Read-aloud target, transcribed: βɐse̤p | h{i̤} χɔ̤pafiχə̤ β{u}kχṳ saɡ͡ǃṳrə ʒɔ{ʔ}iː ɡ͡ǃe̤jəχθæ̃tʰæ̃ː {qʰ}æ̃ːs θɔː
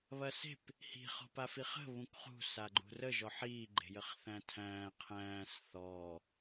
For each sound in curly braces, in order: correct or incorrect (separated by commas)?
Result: correct, incorrect, incorrect, correct